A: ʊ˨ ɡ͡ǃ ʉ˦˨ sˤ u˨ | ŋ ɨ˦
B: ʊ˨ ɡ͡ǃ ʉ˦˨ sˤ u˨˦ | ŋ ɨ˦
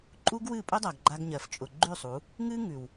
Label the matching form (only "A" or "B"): B